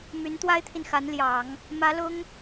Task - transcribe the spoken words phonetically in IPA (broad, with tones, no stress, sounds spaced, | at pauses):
m y˧˥ n t̪ w a˥ ɪ̯ t̪ʰ i˨ n x a˧˥ n l j ɑ˨˩˦ ŋ | m ä˧˥ l ʊ˥ ŋ